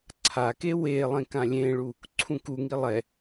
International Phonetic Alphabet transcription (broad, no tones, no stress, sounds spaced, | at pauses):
ǀʰ a k e w e lˠ ẽ k ã lʲ ẽ ɭ u | ǀʰ ũ k u ŋ i lˠ ɛ